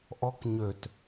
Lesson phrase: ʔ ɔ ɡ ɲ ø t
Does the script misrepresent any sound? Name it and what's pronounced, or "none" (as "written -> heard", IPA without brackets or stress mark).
ɡ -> k